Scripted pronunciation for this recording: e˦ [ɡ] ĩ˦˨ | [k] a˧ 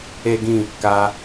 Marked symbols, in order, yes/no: yes, yes

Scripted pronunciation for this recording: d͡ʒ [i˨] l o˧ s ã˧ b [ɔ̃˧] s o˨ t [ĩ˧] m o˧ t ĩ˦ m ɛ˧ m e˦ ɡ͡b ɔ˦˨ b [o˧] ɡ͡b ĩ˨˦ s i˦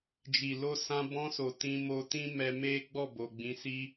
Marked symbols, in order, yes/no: yes, yes, yes, no

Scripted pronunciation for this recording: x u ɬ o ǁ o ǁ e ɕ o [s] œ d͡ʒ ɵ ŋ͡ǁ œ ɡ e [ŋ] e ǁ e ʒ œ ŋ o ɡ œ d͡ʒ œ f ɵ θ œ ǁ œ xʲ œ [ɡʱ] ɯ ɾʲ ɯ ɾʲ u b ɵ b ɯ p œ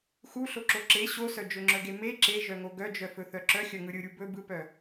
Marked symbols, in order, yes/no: yes, no, no

